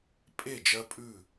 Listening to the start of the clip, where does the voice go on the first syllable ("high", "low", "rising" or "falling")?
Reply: falling